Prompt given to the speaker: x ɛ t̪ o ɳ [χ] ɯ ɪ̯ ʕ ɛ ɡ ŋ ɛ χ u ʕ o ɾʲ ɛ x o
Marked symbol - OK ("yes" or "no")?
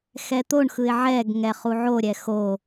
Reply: no